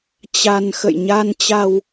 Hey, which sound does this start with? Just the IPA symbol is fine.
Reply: t͡ɕ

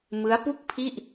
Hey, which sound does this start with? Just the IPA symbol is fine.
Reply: m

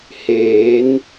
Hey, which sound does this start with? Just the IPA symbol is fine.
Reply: h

